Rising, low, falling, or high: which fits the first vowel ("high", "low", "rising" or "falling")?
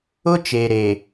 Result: high